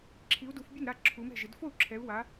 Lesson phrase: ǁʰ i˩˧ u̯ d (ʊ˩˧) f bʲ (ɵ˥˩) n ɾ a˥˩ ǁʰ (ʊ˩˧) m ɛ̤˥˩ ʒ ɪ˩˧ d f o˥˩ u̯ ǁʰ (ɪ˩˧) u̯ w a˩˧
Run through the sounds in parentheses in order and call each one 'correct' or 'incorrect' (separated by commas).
incorrect, incorrect, incorrect, incorrect